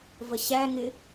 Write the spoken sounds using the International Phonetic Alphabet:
v ə ɕ æ ŋ ɪ

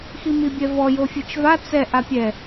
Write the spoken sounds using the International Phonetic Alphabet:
x i m i bʲ ɛ v ɔ j o fʲ ɯ t͡ʃ v a t͡s ɛ ʔ a pʲ ɛ

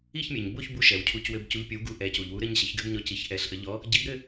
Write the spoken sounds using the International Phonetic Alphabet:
i˥˧ ç mʲ ɘ˩ ɲ b o˥˧ ç b u˧ ʃ ɛ˩ w cʰ u˨˥ c w ɘ˧ b c u˨˥ ʎ pʲ o˨˥ w ɡ u˨˥ ʔ ɛ˩˧ c u˩ ʎ w u˨˥ ɾ ɘ˧ ɲ ɕ ə˩˧ ç ɡ ɘ˧ b ɲ ɔ˨˥ c i˩˧ ç ʔ ɛ˩˧ ɬ ʔ ə˩˧ ʎ ɔ˨˥ | ɟ i˨˥ b ɾ ɘ˥˧

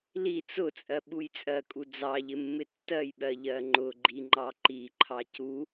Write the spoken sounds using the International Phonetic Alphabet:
l i t͡s ʊ t͡sʼ ɜ ɓ u j t͡sʼ ɜ kʼ u d͡z ɑ ʎ ɪ mː ɪ tː ɜ j ɓ ɜ ʎ ɜ ŋ͡ǃ ʊ ɡ͡ǃ i ŋ͡ǃ ɑ ǃ i ǃʰ ɑ c u

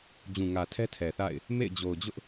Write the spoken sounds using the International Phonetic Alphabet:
d͡ʑ ũ˨ ŋ ä˨ tʰ ɛ˦ tʰ ɛ˨ θ a̰˦˨ ɪ̯ | m ḛ˦˨ ɪ̯ d͡ʑ o˨ ʊ̯ d͡ʑ ʊ˦ ʔ

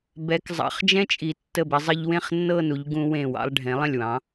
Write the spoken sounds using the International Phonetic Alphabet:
b ɛ˩˧ k zˤ ɑ̰˩˧ χ d͡ʒ ɛ̃˥ t͡ʃʼ i˩˧ tː ə˧˩ b ɪ˩˧ zˤ ə˧ ʎ w ẽ˥˧ χ nː ɤ˥˧ n u˩˧ ʎ ɡ ũ˧ w ẽ˧˩ w ɑ̰˧ lˠ ɖʱ ẽ˩˧ lˠ ə̃˧˩ lʲ w ɑ̃˩˧

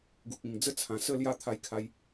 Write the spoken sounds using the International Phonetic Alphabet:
ɡ u˨ k̚ ĩ˨˩ ŋ d͡z ə˥˧ t͡sʰ ã˨˩ s ə˥˧ l j a˥˧ t̪ʰ a˦ j kʰ a˦ j

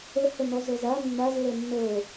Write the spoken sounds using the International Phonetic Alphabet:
ə h ə n ɔ z ɤ z a nː a z lː ɤ nː ɤ

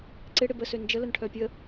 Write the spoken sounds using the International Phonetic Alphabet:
ǀ ɪ ɽ ɪ b ə s ø n d͡ʒ ə l ə n ʈʰ œ pʲ ə

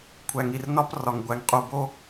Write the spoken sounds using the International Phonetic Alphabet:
kʷʰ æ˨ ŋ i˨ r n ɒ˦ p r ɒ˨ ŋ ɡʷ æ˨ ŋ qʼ u˨ b o˦

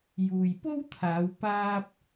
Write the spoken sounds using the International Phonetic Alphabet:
j uː˨ j p o˥ w t̪ʰ aː˨˧ w p aː˧ p̚

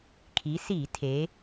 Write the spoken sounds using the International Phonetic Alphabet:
kʰ i˩˧ s i˧˩˧ tʰ e˩˧

